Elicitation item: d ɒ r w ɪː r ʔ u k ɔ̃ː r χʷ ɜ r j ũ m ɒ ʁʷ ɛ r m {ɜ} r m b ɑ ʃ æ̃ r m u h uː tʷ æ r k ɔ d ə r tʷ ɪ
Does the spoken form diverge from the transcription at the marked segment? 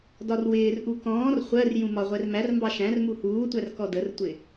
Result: yes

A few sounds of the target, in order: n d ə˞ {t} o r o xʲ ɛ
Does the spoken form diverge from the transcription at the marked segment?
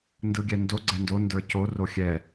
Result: yes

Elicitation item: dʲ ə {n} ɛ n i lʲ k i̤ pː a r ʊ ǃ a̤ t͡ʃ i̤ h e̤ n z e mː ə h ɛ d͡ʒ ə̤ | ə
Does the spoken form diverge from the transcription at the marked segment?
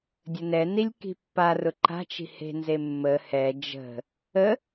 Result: no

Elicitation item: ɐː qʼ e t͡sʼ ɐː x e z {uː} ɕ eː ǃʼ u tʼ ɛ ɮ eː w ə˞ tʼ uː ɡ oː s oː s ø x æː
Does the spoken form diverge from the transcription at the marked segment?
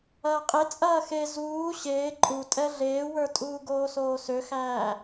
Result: no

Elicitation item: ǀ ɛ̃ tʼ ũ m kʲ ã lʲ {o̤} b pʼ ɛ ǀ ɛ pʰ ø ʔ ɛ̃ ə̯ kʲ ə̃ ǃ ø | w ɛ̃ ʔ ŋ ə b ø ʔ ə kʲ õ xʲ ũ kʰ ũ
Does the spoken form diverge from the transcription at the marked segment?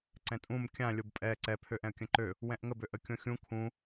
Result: yes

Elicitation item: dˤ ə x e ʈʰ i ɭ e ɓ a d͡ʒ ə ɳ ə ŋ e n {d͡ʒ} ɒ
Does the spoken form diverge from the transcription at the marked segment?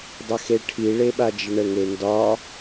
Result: yes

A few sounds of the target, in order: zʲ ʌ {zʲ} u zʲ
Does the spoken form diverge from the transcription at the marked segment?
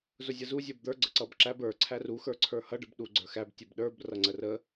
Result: yes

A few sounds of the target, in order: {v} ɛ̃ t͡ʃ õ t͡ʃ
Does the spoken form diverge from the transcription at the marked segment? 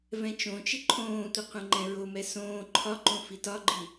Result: no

